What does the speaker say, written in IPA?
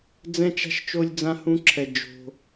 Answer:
d͡zɛ̃˦t͡ʃa̤˦ʃt͡ʃo˦lʲ d͡zã˦hũ˦ǁʰɛ˧ d͡ʒo̤˧

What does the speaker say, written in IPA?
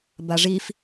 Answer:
baʐif

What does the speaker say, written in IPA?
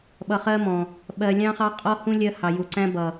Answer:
ɓʌ˨χɜ˦mɔ̃˨ | ɓɜ˨ lʲɑ̃˦χɑ˦ qʼɔ˦hũ˦ lʲɜ˦hɑ˨ju˨ ǀæ̃˦ bʌ˨

